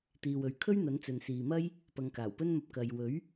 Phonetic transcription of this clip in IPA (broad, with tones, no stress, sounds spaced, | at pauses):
t̪ iː˨ w ɵ˨ ɥ kʰ ɵ˥ ɥ n̪ ɐ˨˥ n t͡s ɵ˨ n s iː˨ m ɐ˥ j | p ɐ˨˧ ŋ k aː˨˩ w p ɵ˥ n m ɐ˧ p̚ k ɐ˨ j w ɵ˨˥ ɥ